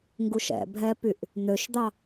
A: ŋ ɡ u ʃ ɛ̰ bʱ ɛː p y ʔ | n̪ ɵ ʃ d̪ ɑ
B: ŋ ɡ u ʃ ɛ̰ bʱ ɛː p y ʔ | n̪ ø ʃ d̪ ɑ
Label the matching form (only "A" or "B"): B